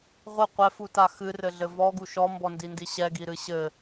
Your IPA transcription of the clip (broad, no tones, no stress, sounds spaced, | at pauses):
ʁʷ ɘ qʷ ɛ f u t a x ɨ r ɘ ɮ ɘ v ɔ ɡ u ʃ ɔ m b ɔ n d i n d i ɕ ɛ ɡ i ɾ ɨ ɕ ɘ